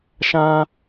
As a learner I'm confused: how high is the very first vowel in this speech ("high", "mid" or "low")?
low